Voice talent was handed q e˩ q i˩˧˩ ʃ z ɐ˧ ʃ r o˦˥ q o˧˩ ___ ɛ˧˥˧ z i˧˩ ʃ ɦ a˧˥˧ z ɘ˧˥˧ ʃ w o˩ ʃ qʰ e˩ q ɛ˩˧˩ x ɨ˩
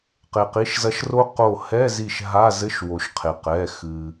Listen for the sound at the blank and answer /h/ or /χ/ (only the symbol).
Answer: h